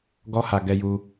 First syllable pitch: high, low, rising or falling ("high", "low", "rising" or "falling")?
high